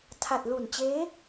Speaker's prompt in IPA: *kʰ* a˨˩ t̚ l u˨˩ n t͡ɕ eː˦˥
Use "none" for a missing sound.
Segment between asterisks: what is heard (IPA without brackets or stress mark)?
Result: tʰ